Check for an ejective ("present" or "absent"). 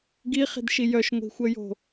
absent